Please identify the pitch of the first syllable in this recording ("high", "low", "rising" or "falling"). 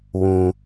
high